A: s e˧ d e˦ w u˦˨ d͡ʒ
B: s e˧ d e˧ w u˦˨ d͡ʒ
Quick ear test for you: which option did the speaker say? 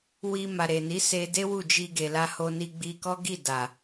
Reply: A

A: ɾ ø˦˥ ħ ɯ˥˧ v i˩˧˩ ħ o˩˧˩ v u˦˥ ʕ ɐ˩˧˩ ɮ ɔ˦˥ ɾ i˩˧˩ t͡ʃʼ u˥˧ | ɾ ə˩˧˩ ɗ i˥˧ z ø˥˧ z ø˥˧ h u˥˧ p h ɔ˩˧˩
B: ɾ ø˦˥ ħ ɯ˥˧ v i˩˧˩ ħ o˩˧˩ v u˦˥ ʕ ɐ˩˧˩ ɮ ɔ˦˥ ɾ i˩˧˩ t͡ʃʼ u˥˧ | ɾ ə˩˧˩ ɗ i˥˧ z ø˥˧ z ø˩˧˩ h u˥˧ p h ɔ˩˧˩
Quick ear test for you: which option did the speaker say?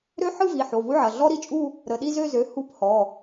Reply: B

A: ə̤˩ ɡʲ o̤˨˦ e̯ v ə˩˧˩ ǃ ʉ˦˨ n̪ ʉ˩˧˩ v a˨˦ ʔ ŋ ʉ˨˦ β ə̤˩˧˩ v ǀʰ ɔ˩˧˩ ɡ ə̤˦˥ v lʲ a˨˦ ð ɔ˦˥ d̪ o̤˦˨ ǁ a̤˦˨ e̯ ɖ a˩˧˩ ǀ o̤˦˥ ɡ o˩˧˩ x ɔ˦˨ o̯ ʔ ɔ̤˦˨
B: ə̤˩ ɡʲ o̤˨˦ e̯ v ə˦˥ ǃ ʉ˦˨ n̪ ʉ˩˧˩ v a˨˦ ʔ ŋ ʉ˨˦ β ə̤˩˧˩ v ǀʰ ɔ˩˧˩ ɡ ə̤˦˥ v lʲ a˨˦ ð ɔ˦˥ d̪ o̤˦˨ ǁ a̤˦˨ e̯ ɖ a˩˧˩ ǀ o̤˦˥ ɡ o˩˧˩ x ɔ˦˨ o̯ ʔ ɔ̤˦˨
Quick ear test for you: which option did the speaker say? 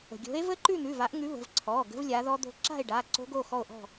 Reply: B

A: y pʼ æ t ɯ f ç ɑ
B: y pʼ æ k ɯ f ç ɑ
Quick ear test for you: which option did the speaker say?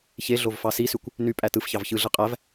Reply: A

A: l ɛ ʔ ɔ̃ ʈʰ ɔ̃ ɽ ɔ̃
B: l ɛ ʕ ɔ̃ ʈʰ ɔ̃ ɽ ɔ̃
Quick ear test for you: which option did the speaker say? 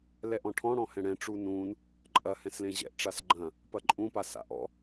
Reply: A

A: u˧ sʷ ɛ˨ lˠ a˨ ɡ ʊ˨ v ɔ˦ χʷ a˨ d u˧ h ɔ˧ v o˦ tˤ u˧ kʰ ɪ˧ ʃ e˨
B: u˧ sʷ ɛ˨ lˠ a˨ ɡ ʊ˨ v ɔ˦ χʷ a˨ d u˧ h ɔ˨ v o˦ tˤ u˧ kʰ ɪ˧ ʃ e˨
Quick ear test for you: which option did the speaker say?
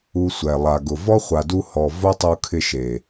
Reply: B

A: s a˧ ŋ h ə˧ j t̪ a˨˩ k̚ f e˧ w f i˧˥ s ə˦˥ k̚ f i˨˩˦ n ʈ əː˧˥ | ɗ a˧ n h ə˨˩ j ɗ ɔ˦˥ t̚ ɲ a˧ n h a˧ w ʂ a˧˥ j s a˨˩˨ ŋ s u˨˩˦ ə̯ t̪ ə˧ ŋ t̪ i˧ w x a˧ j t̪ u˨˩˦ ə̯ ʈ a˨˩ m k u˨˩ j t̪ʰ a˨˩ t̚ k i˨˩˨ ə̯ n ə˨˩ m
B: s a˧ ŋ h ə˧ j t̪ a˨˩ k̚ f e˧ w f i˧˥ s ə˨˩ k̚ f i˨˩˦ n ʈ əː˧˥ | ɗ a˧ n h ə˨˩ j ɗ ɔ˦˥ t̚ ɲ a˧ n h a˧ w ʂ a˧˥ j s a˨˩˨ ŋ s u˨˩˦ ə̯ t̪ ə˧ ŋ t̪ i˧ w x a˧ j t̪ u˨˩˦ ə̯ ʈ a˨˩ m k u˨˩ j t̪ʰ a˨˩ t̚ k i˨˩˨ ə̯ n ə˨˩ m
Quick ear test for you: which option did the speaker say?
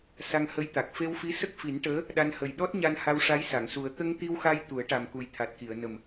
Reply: A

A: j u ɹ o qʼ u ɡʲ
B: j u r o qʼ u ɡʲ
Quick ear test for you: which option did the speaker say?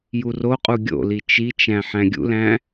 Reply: B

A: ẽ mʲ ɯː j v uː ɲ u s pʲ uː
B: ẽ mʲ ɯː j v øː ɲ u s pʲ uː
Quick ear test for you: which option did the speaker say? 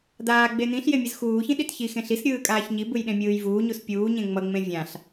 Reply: A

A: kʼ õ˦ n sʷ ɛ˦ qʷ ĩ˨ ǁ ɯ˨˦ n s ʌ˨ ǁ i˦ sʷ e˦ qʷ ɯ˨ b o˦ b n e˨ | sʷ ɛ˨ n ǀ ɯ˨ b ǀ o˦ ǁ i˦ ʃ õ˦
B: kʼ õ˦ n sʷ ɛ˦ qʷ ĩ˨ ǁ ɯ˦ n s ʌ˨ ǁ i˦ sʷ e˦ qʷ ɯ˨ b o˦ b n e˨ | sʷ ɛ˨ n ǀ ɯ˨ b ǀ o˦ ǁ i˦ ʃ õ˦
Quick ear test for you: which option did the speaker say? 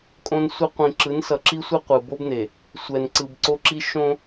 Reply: A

